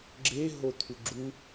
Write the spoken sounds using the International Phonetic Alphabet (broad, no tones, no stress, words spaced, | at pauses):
ɡ͡ǁeɦo t̪ʰuɡ͡ǁu